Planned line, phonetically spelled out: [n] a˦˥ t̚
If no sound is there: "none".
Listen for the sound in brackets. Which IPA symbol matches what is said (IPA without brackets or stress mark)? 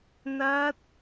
n